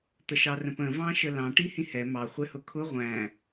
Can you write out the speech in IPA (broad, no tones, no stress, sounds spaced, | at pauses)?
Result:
t̪ ə ʃ ɑ r ə̃ p ə̃ v ɑ̃ ʃ ə l ɑ̃ ʈ i h ĩ h ɛ m ɑ χʷ ɛ h ʊ kʰ ʊ ʁʷ æ̃